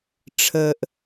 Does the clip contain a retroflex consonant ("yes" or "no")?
yes